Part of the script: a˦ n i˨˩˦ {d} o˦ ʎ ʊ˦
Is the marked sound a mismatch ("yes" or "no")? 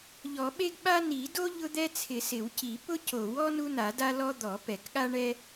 no